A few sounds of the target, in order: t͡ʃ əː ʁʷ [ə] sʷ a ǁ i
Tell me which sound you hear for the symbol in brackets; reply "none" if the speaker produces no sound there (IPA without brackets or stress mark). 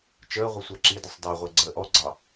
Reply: ə